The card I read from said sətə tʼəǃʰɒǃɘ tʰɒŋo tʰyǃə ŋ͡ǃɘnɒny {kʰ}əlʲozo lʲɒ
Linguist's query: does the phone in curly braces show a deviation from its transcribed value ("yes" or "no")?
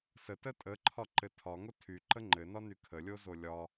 no